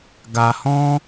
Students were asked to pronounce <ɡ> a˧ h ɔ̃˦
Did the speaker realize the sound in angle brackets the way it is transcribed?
yes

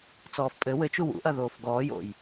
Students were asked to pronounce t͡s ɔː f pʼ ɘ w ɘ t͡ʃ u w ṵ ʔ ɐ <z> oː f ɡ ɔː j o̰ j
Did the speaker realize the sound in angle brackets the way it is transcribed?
no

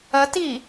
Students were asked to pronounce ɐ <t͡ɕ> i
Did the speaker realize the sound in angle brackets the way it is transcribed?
no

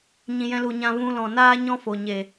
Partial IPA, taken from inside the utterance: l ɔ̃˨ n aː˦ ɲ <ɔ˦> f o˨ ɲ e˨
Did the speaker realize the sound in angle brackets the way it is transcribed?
no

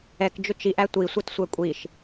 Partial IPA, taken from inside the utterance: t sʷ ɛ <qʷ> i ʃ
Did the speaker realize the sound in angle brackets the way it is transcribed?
no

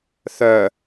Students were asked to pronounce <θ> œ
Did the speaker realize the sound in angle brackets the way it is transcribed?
yes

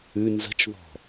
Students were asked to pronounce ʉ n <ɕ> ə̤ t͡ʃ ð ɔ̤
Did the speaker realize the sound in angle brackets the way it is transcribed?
no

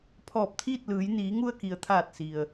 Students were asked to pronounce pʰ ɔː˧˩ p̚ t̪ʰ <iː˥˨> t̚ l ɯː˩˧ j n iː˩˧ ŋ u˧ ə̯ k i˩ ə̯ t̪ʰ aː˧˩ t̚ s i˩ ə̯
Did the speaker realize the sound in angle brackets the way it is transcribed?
yes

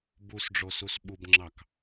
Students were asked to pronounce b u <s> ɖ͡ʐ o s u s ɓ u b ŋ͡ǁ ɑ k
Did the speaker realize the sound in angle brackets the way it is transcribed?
yes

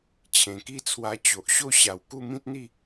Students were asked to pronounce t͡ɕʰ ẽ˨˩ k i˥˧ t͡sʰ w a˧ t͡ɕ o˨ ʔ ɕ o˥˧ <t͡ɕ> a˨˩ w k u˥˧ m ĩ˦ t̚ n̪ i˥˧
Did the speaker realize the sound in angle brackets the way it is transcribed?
no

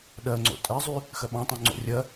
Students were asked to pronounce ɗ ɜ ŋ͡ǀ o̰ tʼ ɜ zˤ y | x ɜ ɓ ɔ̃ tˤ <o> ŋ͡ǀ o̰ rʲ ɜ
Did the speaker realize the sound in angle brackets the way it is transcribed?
no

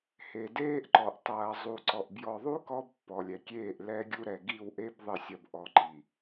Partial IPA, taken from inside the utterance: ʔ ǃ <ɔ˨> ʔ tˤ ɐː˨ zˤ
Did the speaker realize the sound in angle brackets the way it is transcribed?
yes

